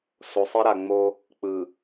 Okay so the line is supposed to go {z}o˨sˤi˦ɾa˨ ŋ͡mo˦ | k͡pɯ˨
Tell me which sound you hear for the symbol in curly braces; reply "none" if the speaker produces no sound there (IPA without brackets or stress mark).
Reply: s